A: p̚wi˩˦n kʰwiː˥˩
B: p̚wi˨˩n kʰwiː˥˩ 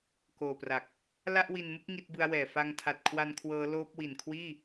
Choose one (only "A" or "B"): B